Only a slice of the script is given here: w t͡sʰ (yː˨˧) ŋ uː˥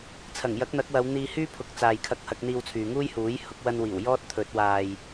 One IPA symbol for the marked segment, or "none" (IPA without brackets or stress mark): yː˨